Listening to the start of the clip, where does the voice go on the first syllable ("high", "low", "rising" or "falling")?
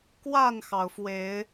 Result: falling